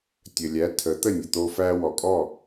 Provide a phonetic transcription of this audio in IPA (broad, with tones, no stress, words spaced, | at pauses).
tʲə˩lʲæ˩˥ tʰə˩˥t̪ə˥˩nʲə˩t̪o˧ fæ˧wɔ˩kʼɔ˥˩